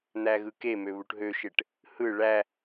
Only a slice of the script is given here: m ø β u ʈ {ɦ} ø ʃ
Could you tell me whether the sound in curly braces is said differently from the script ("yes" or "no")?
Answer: no